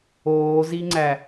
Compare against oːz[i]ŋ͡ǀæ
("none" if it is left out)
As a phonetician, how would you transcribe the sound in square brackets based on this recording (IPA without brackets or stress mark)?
i